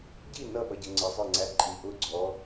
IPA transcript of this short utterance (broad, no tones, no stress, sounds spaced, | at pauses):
ɟ i n ʌ ɓ ʌ ɟ ə ŋ͡ǀ ɪ zˤ ə˞ ŋ͡ǀ æ ǃʼ i ʔ ʊ ɡ͡ǀ ɔ